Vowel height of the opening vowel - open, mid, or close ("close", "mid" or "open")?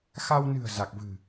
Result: open